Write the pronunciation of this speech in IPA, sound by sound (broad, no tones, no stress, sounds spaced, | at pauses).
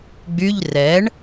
ɡ͡b y ʎ r ɛ ɳ